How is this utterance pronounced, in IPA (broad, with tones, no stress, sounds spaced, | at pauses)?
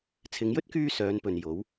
t͡sʰ ɪ˨˧ ŋ j ɵ˥ t̚ k yː˧ s œː˨˧ n p ɵ˨ n j o˨˥ w